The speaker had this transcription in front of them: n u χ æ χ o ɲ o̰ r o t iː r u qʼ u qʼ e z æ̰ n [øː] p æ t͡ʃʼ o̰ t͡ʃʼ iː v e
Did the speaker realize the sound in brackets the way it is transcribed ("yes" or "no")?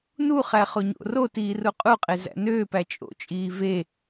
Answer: yes